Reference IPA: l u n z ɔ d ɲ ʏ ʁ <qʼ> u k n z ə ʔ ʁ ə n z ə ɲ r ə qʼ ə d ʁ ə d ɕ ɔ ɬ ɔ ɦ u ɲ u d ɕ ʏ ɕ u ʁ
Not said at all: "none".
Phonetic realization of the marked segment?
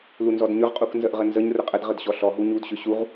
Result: qʼ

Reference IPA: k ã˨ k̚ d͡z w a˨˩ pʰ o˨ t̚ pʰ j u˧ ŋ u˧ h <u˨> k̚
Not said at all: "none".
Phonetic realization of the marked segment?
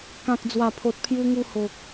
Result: o˨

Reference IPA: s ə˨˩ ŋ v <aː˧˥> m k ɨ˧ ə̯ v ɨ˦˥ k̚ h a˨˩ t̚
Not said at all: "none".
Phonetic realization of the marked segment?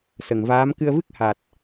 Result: aː˧˥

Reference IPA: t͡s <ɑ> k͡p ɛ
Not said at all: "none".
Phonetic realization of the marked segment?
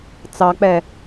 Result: ɑ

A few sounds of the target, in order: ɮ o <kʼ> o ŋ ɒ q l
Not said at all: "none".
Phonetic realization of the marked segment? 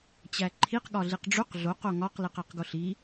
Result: q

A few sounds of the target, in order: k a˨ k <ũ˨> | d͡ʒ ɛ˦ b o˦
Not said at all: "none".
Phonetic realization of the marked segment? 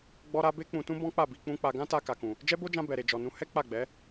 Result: ũ˨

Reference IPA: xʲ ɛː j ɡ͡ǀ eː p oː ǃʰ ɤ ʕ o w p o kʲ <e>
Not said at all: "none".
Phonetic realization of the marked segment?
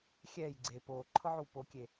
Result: e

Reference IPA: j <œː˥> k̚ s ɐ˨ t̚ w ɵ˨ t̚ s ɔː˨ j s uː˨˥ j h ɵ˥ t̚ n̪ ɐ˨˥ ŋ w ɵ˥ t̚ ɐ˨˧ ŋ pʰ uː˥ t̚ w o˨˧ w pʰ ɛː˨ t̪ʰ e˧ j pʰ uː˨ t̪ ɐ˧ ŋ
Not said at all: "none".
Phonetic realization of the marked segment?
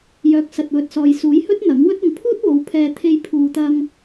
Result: œː˨˥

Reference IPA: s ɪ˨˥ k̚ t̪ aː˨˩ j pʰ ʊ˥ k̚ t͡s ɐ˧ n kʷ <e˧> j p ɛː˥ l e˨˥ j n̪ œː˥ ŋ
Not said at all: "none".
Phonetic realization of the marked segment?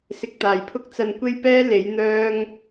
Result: e˥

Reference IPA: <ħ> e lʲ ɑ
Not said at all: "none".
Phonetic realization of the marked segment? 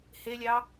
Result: h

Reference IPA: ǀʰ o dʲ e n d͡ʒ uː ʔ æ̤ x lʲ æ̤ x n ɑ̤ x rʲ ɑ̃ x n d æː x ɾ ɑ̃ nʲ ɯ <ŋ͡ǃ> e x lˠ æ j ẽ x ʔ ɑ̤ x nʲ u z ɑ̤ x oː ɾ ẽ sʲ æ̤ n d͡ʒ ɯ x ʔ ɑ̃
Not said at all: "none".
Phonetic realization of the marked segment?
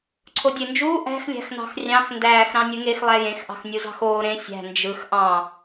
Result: ŋ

